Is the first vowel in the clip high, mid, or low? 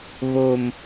mid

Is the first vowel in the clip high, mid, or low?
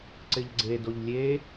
high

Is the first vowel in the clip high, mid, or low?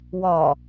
low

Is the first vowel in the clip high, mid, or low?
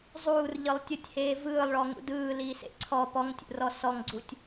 high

